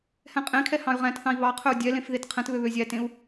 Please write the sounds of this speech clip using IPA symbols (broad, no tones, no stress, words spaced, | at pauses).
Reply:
hɛ̃qʼẽkʰɛ hɑ̃y̯ʁæ̃tθɑ̃i̯ βɑqʰɵu̯ dʲɛlẽf ðetqʰɛ̃tβø βøzʲætẽu̯